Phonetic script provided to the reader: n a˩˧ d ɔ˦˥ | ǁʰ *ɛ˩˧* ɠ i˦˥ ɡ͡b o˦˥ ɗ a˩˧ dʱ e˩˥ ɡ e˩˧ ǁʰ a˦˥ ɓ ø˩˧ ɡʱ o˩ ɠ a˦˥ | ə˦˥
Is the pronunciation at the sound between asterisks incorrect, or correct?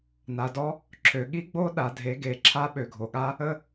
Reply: incorrect